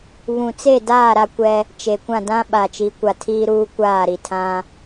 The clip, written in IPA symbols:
βũ˨t͡se˦˨daː˦˨ ɾa˦kʷɛ˦ | t͡ʃe˨kʷã˦˨dã˦ ɓa˨t͡ʃi˨˦kʷa˨tʰiː˦ ɾuː˦kʷaː˦˨ɾi˨tʰã˦

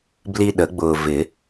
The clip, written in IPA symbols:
bli˦ɗə˨˩˦ɡ͡bʊː˨vɪ˨˩˦

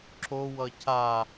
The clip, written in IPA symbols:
ǁo wʌcʰa

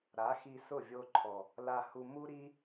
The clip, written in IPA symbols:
ɾa˨˦xi˧ sʊ˦˨vʲo˧ǃʰɔ˨ | la˧hu˧mu˦ ɾi˦

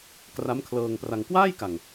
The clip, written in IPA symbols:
kra˦˥mkʰlɤː˧ŋpra˧ŋ kwaː˥˩jka˨˩ŋ

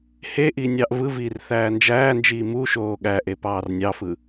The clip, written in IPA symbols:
heʔinʲɑʔ vɯviːrθæː nd͡ʒæːnd͡ʒiː muʃoː ɠæʔepɑːr nʲɑfɯ

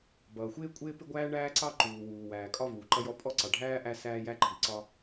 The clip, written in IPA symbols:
bʌː˩xʷɪː˥ kʷʼɪː˥pɪ˥ɡʷæː˥ ɳæː˥ǀɑ˥ ǃuː˩wuː˩wæː˩ kʼɒ˥ vuː˩ǃʌ˥jɔ˥ pʼɔ˥ǀɑ˩ɖʱæː˥ ʔæ˥sæː˥jæ˥ǃʰi˩ ǀɒ˥

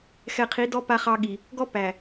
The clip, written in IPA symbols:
xɛ˨qʰi˨˦ dɔ˦ pa˦χɑ˦ɠi˨ | ɡɔ˦ pæ˨

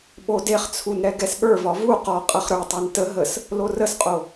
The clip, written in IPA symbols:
ɓodeχt͡sʰun ɾɛɡɛsɠə˞vɒ vu qɒ qʼɐχɾə˞tˤə˞n tə ɦəs | lorəsqʼo

